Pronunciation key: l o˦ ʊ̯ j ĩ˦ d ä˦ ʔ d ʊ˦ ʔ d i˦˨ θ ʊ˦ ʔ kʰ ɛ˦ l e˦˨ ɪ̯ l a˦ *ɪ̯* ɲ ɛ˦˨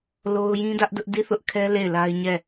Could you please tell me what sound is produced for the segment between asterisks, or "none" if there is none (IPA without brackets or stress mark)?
ɪ̯